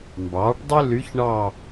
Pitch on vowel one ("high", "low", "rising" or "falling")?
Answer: rising